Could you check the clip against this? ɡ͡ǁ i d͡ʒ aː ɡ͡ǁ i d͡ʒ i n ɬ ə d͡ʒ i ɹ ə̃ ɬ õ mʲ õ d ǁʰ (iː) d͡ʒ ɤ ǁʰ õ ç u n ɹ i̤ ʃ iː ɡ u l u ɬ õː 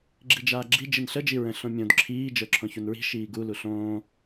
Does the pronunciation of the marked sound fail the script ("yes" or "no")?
no